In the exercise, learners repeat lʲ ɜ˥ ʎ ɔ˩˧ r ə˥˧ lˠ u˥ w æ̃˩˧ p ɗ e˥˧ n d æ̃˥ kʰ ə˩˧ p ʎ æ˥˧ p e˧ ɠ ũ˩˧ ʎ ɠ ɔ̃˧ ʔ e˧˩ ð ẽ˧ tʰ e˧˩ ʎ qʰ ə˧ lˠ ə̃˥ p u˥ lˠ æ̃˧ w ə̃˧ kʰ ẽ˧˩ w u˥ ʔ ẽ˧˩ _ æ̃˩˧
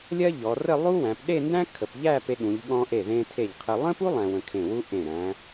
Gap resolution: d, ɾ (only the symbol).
ɾ